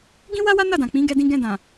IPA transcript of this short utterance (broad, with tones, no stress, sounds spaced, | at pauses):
ɡ ĩ˦ w a˦ w a˦ n a˦˨ d ã˨ k͡p ĩ˨˦ ɡ ɛ˧ d ĩ˧ ɡ ɛ̃˧ d ã˨